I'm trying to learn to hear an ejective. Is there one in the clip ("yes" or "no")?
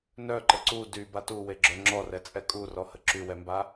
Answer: yes